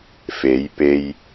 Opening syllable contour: rising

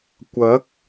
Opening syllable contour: rising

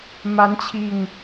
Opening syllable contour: rising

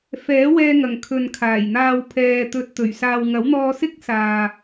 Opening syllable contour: rising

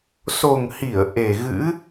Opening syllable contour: low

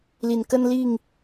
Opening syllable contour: low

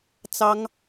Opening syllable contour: high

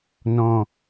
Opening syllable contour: low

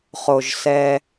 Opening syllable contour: low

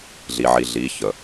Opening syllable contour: low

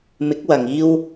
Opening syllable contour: rising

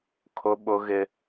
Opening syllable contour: high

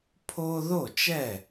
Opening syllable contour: high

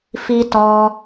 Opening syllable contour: high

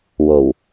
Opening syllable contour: low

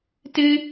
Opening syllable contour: high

